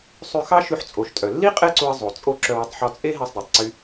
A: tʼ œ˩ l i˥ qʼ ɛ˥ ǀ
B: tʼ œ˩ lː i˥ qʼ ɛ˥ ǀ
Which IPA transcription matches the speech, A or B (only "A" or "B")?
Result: B